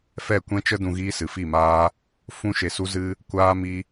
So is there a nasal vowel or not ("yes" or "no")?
yes